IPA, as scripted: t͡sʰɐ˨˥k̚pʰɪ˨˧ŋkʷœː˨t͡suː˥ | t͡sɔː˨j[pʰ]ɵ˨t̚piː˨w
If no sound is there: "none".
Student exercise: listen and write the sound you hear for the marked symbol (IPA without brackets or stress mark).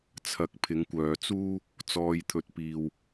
t̪ʰ